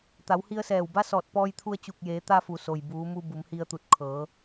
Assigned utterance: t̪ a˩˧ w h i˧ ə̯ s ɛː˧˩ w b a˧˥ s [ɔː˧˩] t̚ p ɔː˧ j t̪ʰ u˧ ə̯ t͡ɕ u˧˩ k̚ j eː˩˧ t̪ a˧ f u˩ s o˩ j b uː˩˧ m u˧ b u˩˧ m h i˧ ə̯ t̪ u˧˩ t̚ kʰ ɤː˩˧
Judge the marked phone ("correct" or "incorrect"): correct